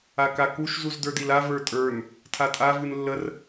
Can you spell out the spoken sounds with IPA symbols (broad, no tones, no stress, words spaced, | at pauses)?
akakuʃ zuzdə˞dila və˞tʼə˞n | tʰatʼa vɨnlːər